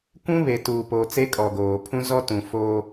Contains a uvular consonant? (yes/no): no